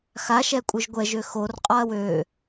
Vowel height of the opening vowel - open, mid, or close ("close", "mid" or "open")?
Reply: open